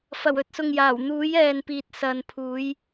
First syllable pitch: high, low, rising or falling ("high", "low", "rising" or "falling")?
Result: low